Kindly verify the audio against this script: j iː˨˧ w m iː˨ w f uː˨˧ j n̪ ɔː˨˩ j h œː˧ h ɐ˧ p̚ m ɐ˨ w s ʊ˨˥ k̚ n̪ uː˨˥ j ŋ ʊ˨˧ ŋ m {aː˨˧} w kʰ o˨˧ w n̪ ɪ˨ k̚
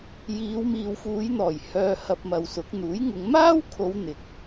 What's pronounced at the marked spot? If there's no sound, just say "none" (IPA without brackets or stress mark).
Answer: aː˥